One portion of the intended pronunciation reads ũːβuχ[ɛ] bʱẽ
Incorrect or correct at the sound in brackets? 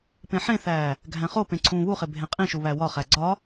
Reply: incorrect: e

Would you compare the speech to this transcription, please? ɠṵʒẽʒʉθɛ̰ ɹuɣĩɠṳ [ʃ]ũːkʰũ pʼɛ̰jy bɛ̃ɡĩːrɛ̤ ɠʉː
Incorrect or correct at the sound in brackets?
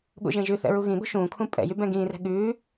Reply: correct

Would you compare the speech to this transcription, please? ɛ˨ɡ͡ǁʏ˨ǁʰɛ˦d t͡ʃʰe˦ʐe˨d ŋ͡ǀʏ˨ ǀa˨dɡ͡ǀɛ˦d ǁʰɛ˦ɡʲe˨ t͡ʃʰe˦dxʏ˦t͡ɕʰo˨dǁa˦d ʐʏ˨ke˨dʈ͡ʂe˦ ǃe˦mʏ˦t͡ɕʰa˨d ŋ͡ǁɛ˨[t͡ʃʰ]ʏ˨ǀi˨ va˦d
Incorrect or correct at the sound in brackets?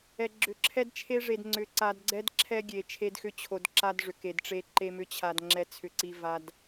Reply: incorrect: t͡sʰ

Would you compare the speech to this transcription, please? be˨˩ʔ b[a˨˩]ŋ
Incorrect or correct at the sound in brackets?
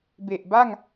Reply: incorrect: a˥˩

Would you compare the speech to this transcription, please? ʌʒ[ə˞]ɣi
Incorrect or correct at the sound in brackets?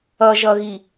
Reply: incorrect: ʌ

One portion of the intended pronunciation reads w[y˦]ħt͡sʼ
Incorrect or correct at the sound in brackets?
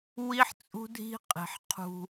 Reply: incorrect: i˦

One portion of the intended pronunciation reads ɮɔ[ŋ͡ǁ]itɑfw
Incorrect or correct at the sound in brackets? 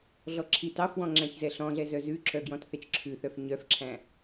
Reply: incorrect: ǁʰ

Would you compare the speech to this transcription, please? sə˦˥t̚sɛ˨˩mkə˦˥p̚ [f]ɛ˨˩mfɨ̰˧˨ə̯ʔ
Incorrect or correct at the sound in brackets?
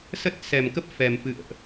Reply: correct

